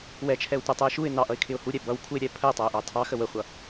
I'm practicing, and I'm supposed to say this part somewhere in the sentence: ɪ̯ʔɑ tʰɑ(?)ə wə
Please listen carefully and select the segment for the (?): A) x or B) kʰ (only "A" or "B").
A